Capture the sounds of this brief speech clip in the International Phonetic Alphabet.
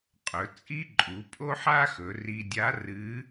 qʼɵ˩˧ t͡sʼi˥ǃʼu˩˧ pʼo˥ħa˥xɵ˩˧ ri˧ dʲa˧˥rɨ˧˥

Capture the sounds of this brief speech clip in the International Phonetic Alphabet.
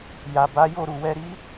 ja˨ ba˨˦jo˦˨ ɾu˨wɛ˧ɾi˦

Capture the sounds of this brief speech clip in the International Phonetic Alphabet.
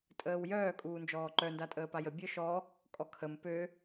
tʼəːwjœː kʼuːnd͡ʒɔːǃœ ndatʼəːpajə bʲœʃɔ | kʼɔkʰəm pø

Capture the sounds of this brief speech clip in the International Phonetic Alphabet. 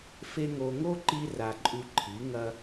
fe˦ŋo˧ ŋo˦ǃi˧ra˨ ǃʼʉ˧ǃʰi˨˦ŋɐ˦

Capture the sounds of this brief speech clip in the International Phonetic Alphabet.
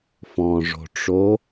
fɔ̃ʐo̤ʈ͡ʂo

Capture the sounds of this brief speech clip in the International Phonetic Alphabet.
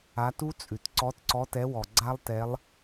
a˨˦tu˦˥t͡sʼʉ˩t ǀɔ˨˦tǀɔ˨˦tɛ˨˦wɔ˩ ɡ͡ǀa˦˥lˠtɛ˨˦lˠ

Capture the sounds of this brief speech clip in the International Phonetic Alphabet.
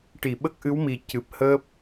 ʈi˨˩˨ɓə˦˥k̚ʔɨ˧˥wmi˨˩ cɨ˨˩p̚ həː˦˥p̚

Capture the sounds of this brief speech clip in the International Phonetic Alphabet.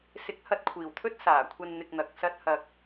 sɪ˨˥k̚ hɐ˧t̚kʷʰiː˨˩wt̪ʰɵ˥t̚ saː˨˩kʷʰɐ˧n n̪ɪ˨k̚n̪ɐ˨k̚ sɐ˧t̚ hɐ˨k̚

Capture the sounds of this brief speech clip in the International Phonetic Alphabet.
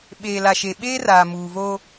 ɓeː˨la˨ʃe˨ ɓeː˦ raː˨muː˨vo˦

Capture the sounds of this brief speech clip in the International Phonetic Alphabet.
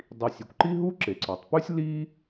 dˤi˩ sʲe˩kʷǃi˥ɦu˥ ǁe˩ǀɔ˩tˤpʉ˥sʲ li˥

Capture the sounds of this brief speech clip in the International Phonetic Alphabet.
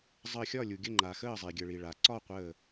zˤəː˧˩xʲɒ˥˩lʲu˩ɡʲə˥˩ ŋ͡ǃa˩xəː˥˩zˤi˩ ɡʲə˩ɭi˩ɭa˩ ǀɒ˥˩qʷəː˧˩

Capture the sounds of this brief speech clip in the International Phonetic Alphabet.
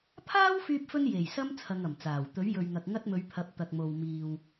pʰaː˥wfyː˧p̚fɵ˧n je˨˩jsɐ˥m t͡sʰɐ˧ŋɐ˨˩mt͡saː˨˩w t̪ɵ˨˥ɥjɵ˨ɥŋɐ˨k̚ ŋɐ˥t̚mɵ˨˧ɥpʰɐ˨˥p̚ t̪ɐ˨k̚mo˨wmiː˨w

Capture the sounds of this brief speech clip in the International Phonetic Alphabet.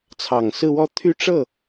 t͡sʰɑ˨˩ŋsɹ̩˥˧wɔ˥˧ t̪ʰy˥˧ʈ͡ʂɤ˥˩

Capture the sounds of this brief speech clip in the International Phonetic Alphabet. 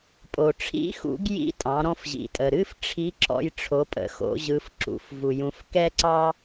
pʼo˩ʈ͡ʂʰḭ˧˥xṵ˩˧ɡ jḭ˥ tʼɑ̃˩˧ɾɔ̃˧fʑḭ˩tʼə˩ ɾɨ˥f ʈ͡ʂʰi˧˥ǁɔ̰˧j ʈ͡ʂʰo˩˧pʼə̰˩xo̰˩˧ʑɯ˩˧f ǁṵ˩˧f vu˩jũ˩˧f kɛ˥ǀɑ˥

